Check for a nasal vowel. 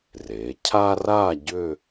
absent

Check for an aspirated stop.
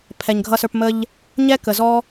present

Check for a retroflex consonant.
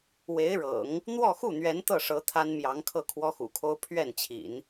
present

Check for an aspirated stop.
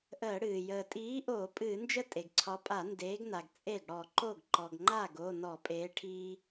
present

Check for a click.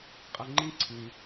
present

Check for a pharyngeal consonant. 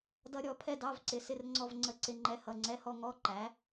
absent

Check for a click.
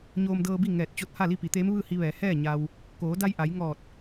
absent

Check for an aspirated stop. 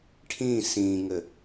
present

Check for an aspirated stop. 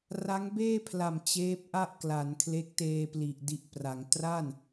present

